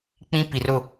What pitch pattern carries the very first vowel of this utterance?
high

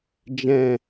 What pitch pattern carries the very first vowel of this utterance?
low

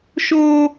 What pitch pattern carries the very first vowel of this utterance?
high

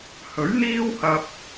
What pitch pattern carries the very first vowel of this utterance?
rising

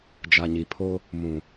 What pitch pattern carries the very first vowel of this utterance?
low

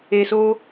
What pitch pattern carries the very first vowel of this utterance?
low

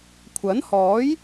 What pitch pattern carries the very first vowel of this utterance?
rising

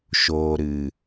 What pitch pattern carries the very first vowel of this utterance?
low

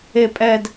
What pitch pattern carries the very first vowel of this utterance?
high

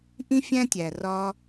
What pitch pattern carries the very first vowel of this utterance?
high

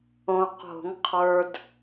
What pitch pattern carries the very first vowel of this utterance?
low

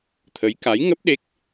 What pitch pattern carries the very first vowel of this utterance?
rising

